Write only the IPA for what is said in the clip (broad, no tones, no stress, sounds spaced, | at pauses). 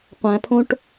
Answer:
qʷ æ̃ pʰ õ ʈ